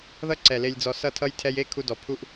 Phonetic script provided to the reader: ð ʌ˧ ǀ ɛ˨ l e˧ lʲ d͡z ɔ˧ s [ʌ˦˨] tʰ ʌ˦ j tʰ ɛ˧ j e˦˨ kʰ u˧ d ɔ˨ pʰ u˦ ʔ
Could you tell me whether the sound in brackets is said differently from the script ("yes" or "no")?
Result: no